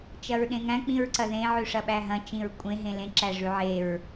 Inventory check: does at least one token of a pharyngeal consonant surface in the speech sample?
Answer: yes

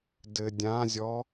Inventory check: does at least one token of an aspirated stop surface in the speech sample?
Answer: no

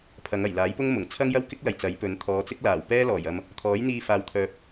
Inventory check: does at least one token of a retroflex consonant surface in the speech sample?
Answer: no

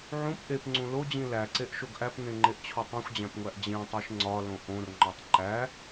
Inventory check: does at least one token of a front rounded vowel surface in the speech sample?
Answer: no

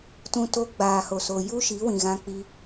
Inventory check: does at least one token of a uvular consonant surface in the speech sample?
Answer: no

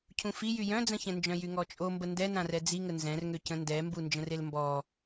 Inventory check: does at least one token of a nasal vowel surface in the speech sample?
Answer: yes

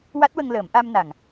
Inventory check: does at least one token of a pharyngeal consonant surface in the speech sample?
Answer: no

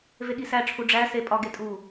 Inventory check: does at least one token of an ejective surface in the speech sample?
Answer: yes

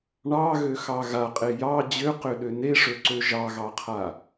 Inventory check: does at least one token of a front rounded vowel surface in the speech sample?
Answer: yes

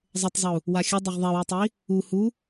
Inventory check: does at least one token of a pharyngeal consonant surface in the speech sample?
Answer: no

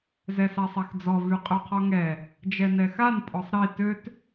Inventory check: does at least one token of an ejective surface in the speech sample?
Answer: yes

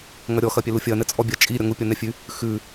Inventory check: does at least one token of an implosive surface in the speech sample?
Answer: no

